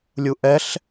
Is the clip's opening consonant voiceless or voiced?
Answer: voiced